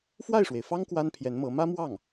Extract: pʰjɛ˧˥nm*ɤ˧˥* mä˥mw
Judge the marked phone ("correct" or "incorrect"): correct